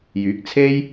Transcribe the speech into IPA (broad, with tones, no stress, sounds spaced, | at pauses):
j yː˨˥ k̚ t͡sʰ e˥ j